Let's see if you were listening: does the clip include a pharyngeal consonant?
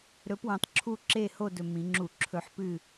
yes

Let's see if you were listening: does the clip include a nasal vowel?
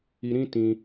yes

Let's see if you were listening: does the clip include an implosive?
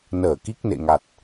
no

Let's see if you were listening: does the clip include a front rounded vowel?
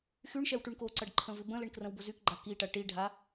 yes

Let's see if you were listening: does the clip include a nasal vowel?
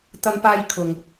no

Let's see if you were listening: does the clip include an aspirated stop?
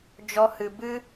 no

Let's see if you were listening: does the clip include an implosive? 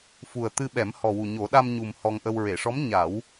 yes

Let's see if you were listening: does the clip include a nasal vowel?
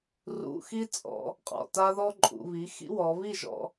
no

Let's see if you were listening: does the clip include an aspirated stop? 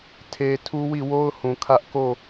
yes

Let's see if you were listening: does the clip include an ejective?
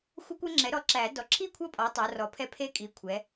yes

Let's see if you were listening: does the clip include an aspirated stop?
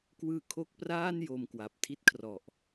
yes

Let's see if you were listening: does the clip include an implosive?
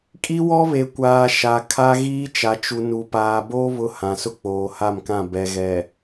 no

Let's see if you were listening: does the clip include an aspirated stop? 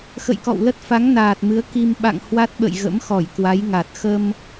no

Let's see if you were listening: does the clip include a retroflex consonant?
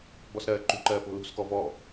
no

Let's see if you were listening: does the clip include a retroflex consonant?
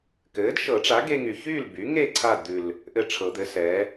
yes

